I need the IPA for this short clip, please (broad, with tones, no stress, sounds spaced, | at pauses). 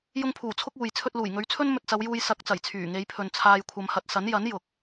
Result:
j ʊ˧ ŋ pʰ uː˨˩ t͡sʰ ʊ˥ k̚ uː˨ j t͡sʰ ɵ˧ t̚ l uː˨˩ j ŋ ɵ˨˧ ɥ t͡sʰ ɵ˥ n m ɵ˧ t̚ t͡s ɐ˨˧ w j uː˧ j s ɐ˨˥ k̚ t͡s ɐ˨˩ j t͡sʰ yː˨˩ ŋ e˨˧ j pʰ ɵ˨ n t͡sʰ aː˨ j kʷʰ ɐ˧ m h ɐ˧ t̚ s ɐ˨˥ n j ɐ˨˥ n j ʊ˨ k̚